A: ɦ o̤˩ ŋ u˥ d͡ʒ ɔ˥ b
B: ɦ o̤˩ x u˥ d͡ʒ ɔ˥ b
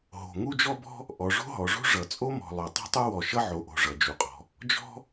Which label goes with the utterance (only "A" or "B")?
A